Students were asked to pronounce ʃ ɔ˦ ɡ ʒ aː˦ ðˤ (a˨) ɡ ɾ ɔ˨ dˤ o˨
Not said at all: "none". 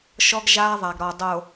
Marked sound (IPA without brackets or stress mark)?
a˨